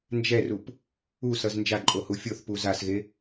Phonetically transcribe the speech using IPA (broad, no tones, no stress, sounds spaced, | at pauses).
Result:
n d͡ʒ ɛ r u p | u s ʌ z n d͡ʒ a ǃʼ o h u fʲ o θ p u z a s ɣ e